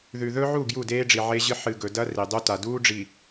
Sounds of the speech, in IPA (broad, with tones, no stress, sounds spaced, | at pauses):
ð ʉ˨ ð ɵ˦ ʕ u˦˨ ɡ j u˦˨ d eː˦ ɖ͡ʐ i˨ ʕ e˦ ʑ ɨ˦ ħ ɨ˨ ɡ ɵ˨ d ɐ˦ r i˨ dˤ u˦ t a˨ d uː˦ ɖ͡ʐ i˨